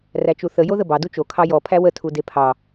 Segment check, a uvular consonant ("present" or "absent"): absent